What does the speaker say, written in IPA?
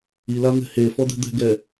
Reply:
i l a n̪ ɛ̤ h e f ɔ d̪ ɛ̤ d̪ ɛ̤ ɡ ɛ

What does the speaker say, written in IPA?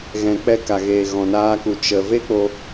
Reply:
ɣ ɛ̃˨ k͡p ɛ˧ k a˨ ɣ eː˨ ɣ ɔ̃˨ n aː˧ k u˨ t͡ʃ ə˨ v e˦ k͡p o˧

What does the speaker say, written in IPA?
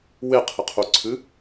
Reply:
w e qʰ ɘ qʰ u ǀʰ ɨ

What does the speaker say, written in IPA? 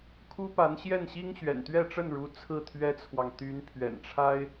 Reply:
kʰ u˥ p a˧˥ n ɕ j ɛ˥˩ n ɕ i˥ ŋ ɕ ɥ ɛ̰˨˩ n t̪ ɥ ɛ˥˧ ʈ͡ʂ ə˥˩ n ɻ u˧˥ t͡sʰ ɹ̩˥˩ t̪ʰ ɥ ɛ˥ t͡sʰ w ɑ˨ ŋ t̪ y˧˥ n pʰ ɥ ɛ̰˨˩ n ʈ͡ʂʰ a˥ ɪ̯

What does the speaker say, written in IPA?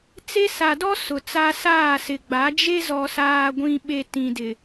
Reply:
t͡s e˦ s a˨ d ɔ˦ s ʊ˨ t͡s a˦ s aː˦˨ s ɪ˨ ɡ͡b a˨˦ d͡ʒ e˦ z ɔ˨ s aː˨ ɡʷ ĩ˨ ɓ e˨ t ĩ˨ d ɪ˨

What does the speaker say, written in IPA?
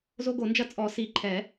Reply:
z o˦ ɡ o˨˩˦ n d͡ʒ ɐ˦ t͡sʼ ɔ˨˩˦ s i˨˩˦ ǃʰ ɛ˨˩˦

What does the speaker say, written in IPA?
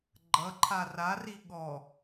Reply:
ɡ͡ǃ ʌ ǃʰ a r a r i ɠ ɔ

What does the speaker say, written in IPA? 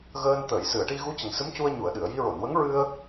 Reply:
ɣ əː˧ n t̪ əː˨˩˨ j s ɨ˨˩˨ ə̯ ʈ i˧ ɣ u˧˥ c ə˨˩ ŋ s ɨ˧˥ m c u˧ ə̯ ɲ u˨˩˨ ə̯ ɗ ɨ˨˩˨ ə̯ j i˧ ɹ o˨˩˨ n w ə˧˥ ŋ ɹ ɨ˧ ə̯

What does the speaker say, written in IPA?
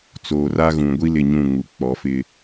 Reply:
t͡s oː˨ r a˦ ɣ ũ˨ ɡʷ i˦ l ɪ˦˨ ɲ ũ˦˨ ŋ u˨ k͡p ɔ˨˦ f ɪ˦

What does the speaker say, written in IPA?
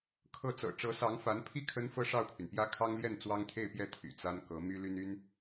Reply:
kʰ ɤ˧˥ t͡s ɤ̰˨˩ ʈ͡ʂ ɤ˧˥ s ɑ˧˥ ŋ f a˧˥ n pʰ i˥˩ kʰ ə˥ n f ɤ˥˧ ʂ ɑ˥˩ ʊ̯ pʰ y˩ n p j ä˥ kʰ ɑ˥ ŋ l j ɛ˥˩ n t͡s w ɑ˥ ŋ t̪ʰ e˥˧ ɪ̯ p j ɛ˥˩ t̪ʰ y̰˨˩ t͡s a˥ n k ɤ˧˥ m y˥ l y˥ n y˥ n

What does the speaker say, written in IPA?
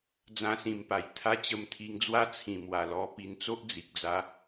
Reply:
d͡z ã˦ s ĩ˧ m p a˨˩ j t̪ʰ a˦ t͡ɕ ə˧ m t̪ʰ i˧ ŋ d͡z w a˦ t͡sʰ ĩ˨˩ m w a˨˩ l ɔ˧ p i˧ n t͡s o˦ ʔ d͡z i˨ k̚ d͡z a˧

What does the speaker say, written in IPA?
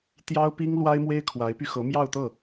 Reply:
t̪ j ɑ˥ ʊ̯ p i˥ ŋ l w a˥ ɪ̯ m w e˥ ɪ̯ kʰ w a˧˥ ɪ̯ p y˧ x ɤ˧˥ m j ɑ˥˧ ʊ̯ t̪ ɤ˥˩

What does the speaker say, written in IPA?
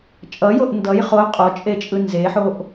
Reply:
t͡ʃʼ ʌ j o ʔ n d ʌ j χ o qʼ o t͡ʃʼ e t͡ʃʼ ɯ n z e ħ o ʔ

